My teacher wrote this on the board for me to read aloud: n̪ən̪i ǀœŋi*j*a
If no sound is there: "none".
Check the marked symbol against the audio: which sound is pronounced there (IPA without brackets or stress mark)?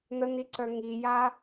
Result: j